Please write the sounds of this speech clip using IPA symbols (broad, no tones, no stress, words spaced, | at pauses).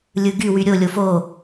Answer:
lʲɯɡywy ɾʲolʲo fo